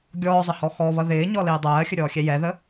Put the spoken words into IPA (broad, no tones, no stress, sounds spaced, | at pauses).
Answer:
ɡʲ ɔː zˤ ə h ɔ x ɔ β ʌ ð ɪː ɲ ɔ l ɪː dˤ ɜː xʲ ə ɾʲ ɔː xʲ ɛ j ɛ ð ə